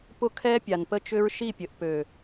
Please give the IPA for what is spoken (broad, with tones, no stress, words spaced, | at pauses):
pʊ˦kʰɛ˦ pʲa˨npə˦t͡ʃʏ˦ɹ ʃi˦˨pʲə˨ʔ pø˨